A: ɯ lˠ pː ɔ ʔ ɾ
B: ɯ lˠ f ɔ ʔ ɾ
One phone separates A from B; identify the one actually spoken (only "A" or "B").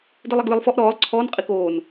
B